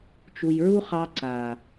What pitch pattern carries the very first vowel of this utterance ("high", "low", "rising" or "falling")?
low